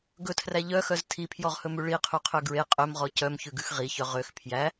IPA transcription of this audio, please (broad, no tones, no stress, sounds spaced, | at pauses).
ɡ ɵ tʰ r æ ʎ œ x œ z tʰ i pʰ j ɔ ʁ h ɵ m ʉ ɭ i qʰ y qʰ ø ɡ ɹ e qʼ ø m ʁ ɔ c œ m ç ʉ ɡ ʉ x ʁ i ç œ ʁ ø x pʰ j æ